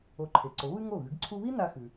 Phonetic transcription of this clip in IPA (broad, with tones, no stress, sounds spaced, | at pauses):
o˩˥ ǃʰ e˩ ǀ o˩˥ β ɨ˥ ŋ o˥˩ ɣ ɨ˩˥ ɡ ǀʰ u˥ β i˥ n a˧ x ʉ˩